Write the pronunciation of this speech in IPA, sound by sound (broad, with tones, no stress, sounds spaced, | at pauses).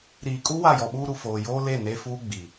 ɾ iː˨ kʼ u˦ w a˦˨ j ɔ˨ ɓ uː˦ ɾ u˨ f oː˨ j oː˦ l e˦˨ n e˦ f uː˦ ɡ͡b i˨